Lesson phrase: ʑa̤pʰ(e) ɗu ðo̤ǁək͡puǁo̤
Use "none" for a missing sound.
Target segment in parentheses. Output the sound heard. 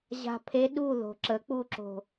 e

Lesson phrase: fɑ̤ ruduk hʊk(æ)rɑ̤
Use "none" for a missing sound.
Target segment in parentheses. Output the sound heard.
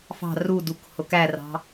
æ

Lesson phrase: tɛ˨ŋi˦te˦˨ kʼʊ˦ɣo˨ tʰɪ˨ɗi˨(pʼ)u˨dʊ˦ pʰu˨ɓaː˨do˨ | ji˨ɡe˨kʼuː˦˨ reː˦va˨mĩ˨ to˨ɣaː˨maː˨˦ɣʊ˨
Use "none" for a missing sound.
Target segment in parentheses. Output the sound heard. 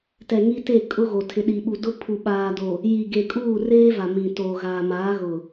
ɓ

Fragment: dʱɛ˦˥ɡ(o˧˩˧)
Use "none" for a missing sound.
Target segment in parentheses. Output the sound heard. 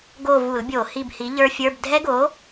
o˨˥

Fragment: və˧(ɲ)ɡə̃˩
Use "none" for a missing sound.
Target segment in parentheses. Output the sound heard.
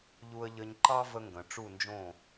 ŋ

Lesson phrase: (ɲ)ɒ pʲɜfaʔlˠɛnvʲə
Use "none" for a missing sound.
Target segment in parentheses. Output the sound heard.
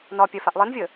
n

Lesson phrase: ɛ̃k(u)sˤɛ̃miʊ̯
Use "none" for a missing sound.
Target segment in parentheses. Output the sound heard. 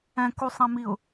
u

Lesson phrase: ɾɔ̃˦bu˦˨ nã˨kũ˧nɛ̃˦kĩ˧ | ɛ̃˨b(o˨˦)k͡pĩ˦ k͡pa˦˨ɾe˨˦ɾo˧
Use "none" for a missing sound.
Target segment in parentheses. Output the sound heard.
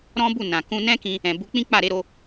u˨˦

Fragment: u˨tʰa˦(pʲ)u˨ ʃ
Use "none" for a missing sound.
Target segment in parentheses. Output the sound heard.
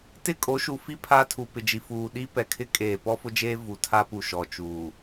p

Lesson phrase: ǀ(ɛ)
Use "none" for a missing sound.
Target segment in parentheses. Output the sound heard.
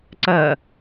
ɜ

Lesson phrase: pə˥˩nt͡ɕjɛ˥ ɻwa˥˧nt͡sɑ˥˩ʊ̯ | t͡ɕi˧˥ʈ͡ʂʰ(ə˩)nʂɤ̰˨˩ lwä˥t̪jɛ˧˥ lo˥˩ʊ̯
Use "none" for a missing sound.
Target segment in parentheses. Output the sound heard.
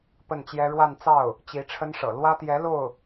ə˥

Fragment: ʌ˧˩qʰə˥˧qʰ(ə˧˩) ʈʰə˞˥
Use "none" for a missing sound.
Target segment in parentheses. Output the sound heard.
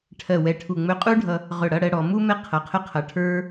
ʌ˧˩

